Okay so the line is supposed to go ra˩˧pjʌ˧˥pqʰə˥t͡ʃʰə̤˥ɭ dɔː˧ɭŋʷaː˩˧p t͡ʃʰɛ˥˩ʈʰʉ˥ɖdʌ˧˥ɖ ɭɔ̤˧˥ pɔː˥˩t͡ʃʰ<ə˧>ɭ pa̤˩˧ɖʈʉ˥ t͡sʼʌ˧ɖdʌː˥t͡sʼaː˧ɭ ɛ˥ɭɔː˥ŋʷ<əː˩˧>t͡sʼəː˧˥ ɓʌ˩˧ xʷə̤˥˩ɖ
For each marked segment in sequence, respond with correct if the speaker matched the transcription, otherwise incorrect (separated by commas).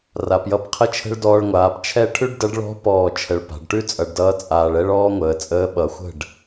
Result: correct, correct